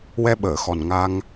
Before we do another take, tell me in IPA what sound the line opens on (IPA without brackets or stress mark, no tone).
w